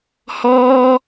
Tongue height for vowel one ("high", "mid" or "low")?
mid